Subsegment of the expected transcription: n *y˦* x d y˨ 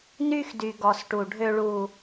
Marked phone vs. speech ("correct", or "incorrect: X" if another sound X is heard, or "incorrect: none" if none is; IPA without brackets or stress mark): correct